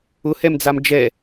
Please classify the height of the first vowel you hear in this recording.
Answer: high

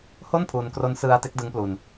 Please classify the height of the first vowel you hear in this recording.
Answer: mid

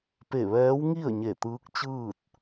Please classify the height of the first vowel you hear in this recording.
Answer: mid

